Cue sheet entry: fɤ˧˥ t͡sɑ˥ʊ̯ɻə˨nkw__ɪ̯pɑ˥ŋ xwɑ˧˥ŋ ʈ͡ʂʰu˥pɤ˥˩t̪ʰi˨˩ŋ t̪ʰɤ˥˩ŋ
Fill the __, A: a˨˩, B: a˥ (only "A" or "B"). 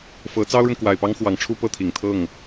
A